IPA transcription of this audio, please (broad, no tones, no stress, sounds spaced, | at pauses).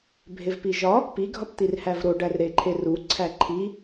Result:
bʱ e v p i ʒ ɒ | p i ɡʱ ɒ p t̪ i r h æ v ɾ o ɖ æ r ɾ e ǃʰ e r u ǀʰ æ ǃʰ i